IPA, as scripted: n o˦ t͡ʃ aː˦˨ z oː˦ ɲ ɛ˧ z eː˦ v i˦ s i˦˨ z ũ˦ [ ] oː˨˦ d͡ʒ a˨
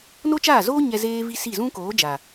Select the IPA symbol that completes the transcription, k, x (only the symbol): k